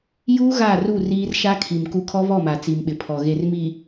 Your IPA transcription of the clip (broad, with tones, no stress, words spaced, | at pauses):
juː˦ ɣa˦˨ru˦˨riː˦r ʃa˦kʰi˨m ku˦ kʰɔ˦βɔ˦˨ma˨ t͡si˨mɓɪ˨pʰɔ˨ ɣe˨rmi˨